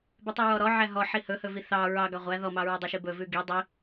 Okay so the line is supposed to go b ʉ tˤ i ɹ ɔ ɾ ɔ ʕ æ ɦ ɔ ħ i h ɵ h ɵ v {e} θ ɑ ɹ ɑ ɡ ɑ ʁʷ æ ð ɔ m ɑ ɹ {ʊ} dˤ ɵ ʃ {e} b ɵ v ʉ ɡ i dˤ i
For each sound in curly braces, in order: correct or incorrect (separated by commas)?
incorrect, incorrect, incorrect